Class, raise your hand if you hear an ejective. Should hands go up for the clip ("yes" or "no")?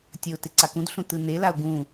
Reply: no